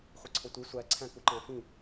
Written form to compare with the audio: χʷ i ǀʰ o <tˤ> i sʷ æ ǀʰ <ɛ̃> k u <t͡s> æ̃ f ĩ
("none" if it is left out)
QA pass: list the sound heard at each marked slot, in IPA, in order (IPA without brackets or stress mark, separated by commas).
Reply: tʷ, æ̃, ǃ